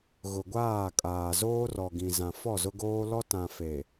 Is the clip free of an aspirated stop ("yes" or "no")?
yes